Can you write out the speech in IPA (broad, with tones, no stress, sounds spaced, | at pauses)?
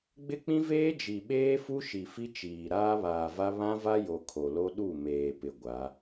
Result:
ɡ͡b ɪ˦ k͡p ĩ˦ v eː˦ d͡ʒ i˨ ɓ eː˦ f u˦ ʃ i˨ f i˦ t͡ʃ iː˨ ɾ aː˦ β aː˨ v a˦ β ã˦ v a˦ j o˨ kʰ o˨ l o˦ ɗ u˦˨ m eː˨ p ɪ˨ ɡʷ a˨˦